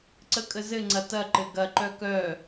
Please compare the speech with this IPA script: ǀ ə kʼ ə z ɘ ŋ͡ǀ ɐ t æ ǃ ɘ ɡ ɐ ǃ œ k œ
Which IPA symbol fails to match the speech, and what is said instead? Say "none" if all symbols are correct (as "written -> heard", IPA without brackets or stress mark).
æ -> ɐ